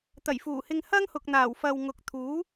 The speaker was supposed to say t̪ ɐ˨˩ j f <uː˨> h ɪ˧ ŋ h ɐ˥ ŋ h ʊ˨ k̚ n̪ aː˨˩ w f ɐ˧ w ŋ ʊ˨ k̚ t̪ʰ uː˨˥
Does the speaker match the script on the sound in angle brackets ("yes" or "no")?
no